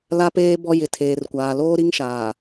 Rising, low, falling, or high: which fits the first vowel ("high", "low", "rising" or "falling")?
high